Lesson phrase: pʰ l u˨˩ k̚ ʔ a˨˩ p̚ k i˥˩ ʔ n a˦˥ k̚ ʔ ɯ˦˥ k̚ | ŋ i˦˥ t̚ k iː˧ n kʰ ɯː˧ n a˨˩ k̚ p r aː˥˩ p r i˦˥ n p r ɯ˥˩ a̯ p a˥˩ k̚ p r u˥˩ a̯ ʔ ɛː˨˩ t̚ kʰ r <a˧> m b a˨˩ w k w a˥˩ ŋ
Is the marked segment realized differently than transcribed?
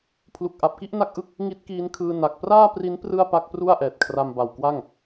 no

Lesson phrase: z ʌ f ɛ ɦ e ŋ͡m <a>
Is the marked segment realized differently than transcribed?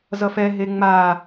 no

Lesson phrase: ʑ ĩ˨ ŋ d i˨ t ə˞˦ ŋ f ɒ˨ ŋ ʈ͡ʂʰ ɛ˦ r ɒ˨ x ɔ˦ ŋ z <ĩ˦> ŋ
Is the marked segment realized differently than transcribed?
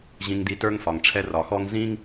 no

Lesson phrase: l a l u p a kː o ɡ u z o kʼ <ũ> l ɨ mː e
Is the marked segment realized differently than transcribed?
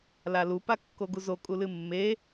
yes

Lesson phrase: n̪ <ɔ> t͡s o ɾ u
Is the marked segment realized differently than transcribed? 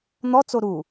no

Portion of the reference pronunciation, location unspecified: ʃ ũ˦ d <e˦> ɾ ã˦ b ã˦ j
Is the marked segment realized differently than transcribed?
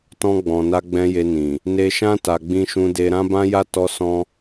no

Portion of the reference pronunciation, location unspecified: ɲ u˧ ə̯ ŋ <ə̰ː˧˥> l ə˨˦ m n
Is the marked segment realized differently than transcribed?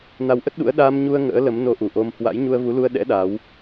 no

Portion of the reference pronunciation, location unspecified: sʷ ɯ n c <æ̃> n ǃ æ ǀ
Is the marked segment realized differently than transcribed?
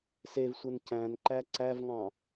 no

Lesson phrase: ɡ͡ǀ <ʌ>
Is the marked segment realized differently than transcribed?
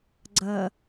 no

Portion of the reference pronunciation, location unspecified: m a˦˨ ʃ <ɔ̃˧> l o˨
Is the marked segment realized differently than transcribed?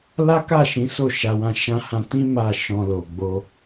no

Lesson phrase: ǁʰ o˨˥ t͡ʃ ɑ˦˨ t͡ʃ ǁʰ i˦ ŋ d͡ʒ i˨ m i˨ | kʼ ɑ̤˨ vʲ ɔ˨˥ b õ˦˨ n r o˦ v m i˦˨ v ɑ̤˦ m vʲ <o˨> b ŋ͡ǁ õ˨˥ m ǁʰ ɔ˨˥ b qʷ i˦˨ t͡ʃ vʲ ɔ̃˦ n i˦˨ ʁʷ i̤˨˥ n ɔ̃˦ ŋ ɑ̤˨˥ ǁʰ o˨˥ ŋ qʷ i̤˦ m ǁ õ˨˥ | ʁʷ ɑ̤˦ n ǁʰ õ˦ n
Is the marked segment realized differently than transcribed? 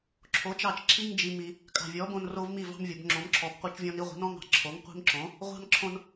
no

